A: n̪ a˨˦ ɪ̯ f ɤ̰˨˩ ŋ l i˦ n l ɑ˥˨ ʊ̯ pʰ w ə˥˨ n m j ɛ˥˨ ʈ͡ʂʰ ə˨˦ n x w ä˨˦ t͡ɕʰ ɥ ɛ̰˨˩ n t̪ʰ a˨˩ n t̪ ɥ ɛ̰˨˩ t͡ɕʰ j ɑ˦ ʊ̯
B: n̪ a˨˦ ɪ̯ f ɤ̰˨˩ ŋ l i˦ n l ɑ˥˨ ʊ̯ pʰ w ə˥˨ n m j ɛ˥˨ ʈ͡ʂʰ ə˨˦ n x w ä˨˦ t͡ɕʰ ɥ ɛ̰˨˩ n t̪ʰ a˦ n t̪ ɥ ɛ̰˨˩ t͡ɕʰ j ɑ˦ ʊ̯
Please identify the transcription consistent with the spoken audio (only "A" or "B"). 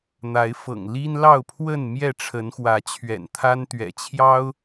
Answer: B